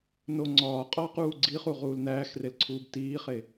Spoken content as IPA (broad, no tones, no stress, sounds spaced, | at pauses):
n o ŋ͡ǀ ɒː qʼ ɒː q uː ɡ͡ǀ i χ u ʁ uː l n æː x r e l ǀʰ uː b t iː χ e